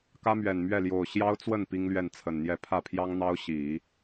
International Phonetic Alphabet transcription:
k ä˥ m ɥ ɛ˨˩ n m ɥ ɛ˥˩ l j o˨˩ ʊ̯ ɕ j ɑ˥ ʊ̯ t͡s w ə˥˩ n p i˥ ŋ l ɥ ɛ˥˩ n t͡sʰ ə˨˩ n n̪ j ɛ˥˧ pʰ ä˥˩ pʰ j ɑ˥ ŋ n̪ ɑ˥ ʊ̯ ɕ i˨˩˦

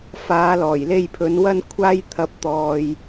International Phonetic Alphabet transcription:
f aː˨˧ l ɔː˨˩ j l e˧ j pʰ ɵ˨˧ n w ɐ˧ n kʷʰ aː˧ j t̪ʰ ɐ˨˥ p̚ t̪ ɔː˨ j

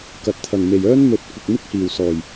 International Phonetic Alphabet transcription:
k ɐ˨˥ t̚ t̪ʰ ɐ˨ ŋ m e˨ j œː˥ n m ɵ˧ t̚ kʷ ɪ˧ k̚ m ɪ˥ k̚ h iː˨ w s ɔː˨ j

